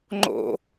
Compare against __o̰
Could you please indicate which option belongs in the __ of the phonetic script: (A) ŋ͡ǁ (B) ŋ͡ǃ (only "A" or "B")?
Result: B